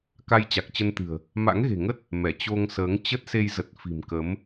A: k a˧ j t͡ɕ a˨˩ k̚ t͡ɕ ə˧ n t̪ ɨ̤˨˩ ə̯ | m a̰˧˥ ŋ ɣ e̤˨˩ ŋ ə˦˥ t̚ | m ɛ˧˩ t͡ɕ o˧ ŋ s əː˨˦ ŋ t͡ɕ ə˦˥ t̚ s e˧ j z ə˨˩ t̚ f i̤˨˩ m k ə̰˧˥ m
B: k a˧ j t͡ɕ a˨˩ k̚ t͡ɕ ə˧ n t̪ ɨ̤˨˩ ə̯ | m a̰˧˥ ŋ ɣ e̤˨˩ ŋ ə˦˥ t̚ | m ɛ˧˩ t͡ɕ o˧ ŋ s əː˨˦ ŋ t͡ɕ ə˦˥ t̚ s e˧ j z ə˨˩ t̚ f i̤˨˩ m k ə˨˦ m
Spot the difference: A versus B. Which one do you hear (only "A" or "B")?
B